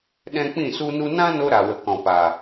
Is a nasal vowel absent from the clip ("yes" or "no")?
no